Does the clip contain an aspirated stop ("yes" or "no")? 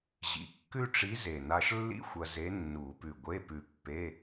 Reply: no